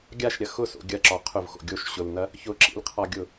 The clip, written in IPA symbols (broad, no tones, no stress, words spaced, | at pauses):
ɡʲaʃɾʲɐ xʊso̰ ɡʲɐǁɒ qʰʊvxo̰ ɡʲoʃ ɕʊlnɐ | çʊǁḭlqʰɒɡʲʊ